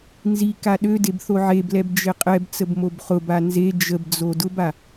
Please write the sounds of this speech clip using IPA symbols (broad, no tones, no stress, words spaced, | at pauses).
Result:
nzi kaɗødeb θoʕeblɛb d͡ʒeqʼɛbt͡səb mobχʊba nze d͡ʒəbd͡zo dʊba